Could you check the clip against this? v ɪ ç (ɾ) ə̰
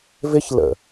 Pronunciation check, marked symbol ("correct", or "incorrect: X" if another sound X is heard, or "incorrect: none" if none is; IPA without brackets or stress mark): incorrect: l